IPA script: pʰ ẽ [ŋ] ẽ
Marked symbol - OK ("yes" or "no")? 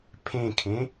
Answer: no